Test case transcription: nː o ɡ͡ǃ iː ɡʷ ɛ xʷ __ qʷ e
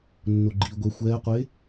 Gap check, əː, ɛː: ɛː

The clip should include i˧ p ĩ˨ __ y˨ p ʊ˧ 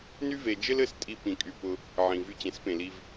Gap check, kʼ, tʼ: kʼ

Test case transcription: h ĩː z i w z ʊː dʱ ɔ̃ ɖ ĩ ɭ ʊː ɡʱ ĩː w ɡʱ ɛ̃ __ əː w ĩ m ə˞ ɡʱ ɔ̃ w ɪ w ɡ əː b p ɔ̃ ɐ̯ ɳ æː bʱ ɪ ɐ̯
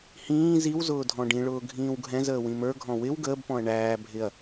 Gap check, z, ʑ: z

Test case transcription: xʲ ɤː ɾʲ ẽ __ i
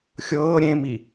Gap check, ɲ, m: m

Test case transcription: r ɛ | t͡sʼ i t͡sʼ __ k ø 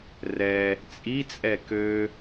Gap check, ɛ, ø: ɛ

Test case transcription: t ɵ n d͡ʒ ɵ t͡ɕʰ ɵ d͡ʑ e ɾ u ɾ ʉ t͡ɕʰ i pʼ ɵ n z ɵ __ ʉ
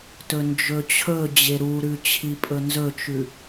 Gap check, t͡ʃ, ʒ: t͡ʃ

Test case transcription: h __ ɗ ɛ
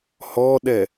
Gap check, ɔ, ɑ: ɔ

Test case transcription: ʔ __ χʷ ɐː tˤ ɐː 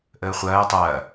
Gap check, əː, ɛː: əː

